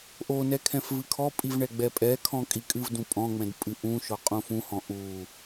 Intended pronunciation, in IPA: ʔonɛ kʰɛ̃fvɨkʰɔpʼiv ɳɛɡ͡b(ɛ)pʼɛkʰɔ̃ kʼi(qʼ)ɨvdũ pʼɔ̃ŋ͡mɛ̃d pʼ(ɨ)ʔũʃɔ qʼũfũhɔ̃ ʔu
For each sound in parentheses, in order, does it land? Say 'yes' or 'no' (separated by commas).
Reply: yes, no, yes